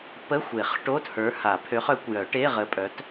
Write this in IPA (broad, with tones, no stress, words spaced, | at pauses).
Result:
pə˧˥˧ xʷe˨˩˦χʈo˧˥˧t hə˞˨˥ha˨˩˦pʰø˨˥χ œ˨˥kʷjœ˨˩˦ ʈe˧˥˧ʁə˨˥pʼœ˨˥t